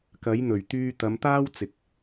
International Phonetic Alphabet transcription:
kɐ˨˥j n̪ɵ˨˩ɥt̪yː˧ t̪ɐ˨˧mt̪aː˥wt͡sɪ˨k̚

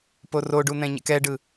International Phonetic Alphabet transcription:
poroɖun̪ɛ̃ ɲɛ̰kɛɖɯ

